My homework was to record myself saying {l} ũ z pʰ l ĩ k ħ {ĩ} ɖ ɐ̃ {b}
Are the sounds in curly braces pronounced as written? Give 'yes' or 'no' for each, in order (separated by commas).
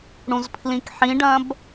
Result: no, yes, yes